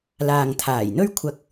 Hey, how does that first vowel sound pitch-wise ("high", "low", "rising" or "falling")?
low